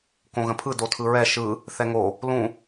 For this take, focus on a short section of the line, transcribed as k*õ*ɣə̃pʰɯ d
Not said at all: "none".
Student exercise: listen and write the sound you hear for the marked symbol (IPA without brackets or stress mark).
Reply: õ